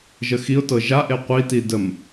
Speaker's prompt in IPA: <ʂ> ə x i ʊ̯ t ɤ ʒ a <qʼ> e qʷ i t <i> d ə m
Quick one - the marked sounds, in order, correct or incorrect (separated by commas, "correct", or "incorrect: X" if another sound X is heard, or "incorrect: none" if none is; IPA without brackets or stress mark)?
incorrect: ʒ, incorrect: ʔ, correct